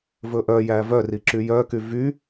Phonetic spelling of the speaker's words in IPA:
vɵʔœjæ vœri ǁyjœky vy

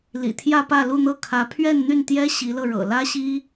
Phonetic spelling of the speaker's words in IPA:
lḭ˨˩t̪ʰjä˥˧pä˥˧ lu˥˧n̪ɤ˥˩kʰä˧˥ pʰɥɛ˥˧nn̪y˥˩nt̪jɛ˥ ɕi˧˥lɤ˧ ɻɤ̰˨˩ lä˥ɕi˥

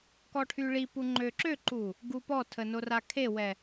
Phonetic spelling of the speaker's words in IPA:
kɔʈʰyɭipu ŋ͡ǃøǁøǃu | ɡupɔtʰə norakʰewɛ

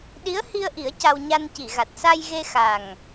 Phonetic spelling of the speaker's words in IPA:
ɗi˧˥ə̯hi˧ə̯ʔi˨˩˦ə̯ ca˧wɲa˧n ci˨˩˨ɣa˨˩t̚sa˧jɣe˧ xa˨˩ŋ

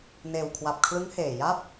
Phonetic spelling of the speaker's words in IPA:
neː˨˩wkʰwa˨˩p̚ kʰlɯ˦˥ŋheː˨˩ ja˥˩p̚

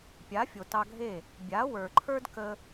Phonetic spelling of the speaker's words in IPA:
pʲa˨˦fʲo˨ tɑ˧ɡʱe˦˨ | bʲa˨˦wə˞˨ǃʰə˞˦d kə˦

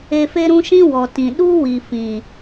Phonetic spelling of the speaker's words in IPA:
e˧fe˦ɾũ˦ ʃĩ˦wɔ˨ tĩ˨ ɗu˦wi˨fĩ˨

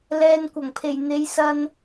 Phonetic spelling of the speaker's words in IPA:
lɛː˧nkʷɐ˨˩ŋpʰe˨˩j n̪e˨˧jsɐ˧n

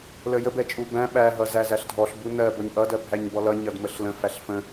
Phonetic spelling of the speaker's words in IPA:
ləjə bɛt͡ʃʼubæ̃ ɓæ ɦʌzæzæɬdʱɔɬ bunɜ bʌɲʔʌd ɜbʱæɲbɔlʌ ɲʌdməɬlə̃ fæɬfə̃

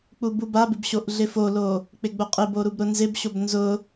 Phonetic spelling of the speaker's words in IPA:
k͡pububabɪb ɕoʔɮɪfolo | k͡pɪɡ͡bʊqʼɪbo ɾubɾʊnzɪbɕob nzʊ

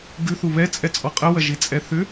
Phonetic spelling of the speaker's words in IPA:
ɡʉ θuβɛt͡sʼɛ t͡sʼɔqʼəwɐ ʒit͡sʼɛθʏ

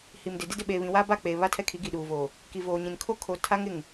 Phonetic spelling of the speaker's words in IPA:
hi˨mdɪ˨di˦ dɪ˦˨ɓeː˨βĩ˨ wa˦ba˦˨ k͡peː˨ βa˦tʰɛ˦kʰi˨˦ ɡi˨ɗuː˨vo˨ | ki˨voː˨ɲĩ˨n kʰo˦kʰo˨tʰa˦ŋ ɪ˦˨ŋ

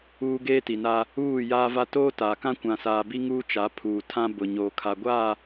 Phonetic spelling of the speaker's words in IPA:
uː˦ɡeː˦ti˨na˦ | uː˦˨ jaː˦va˦ toː˦taː˨kã˦ kʷã˨saː˨bi˦ ŋuː˦t͡ʃa˨˦ pʰuː˨tʰã˦ bʊ˨ ɲoː˨kʰa˨ɡʷaː˦˨

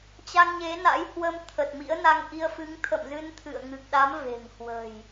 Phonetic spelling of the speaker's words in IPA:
t͡ɕa˧ŋɲe˨˦na̰˧˥jhwə˧m t̪ʰə˨˩t̚mḭ˧˥ə̯na˧ŋʔi˧ə̯ fɨ˨˦ŋt̪ʰə̰˧˨mzɨ˧n t̪ʰɨ̰˧˨ə̯ ŋɨ˨˩k̚ɗa˨˦m ve̤˨˩ŋhwə̤˨˩j

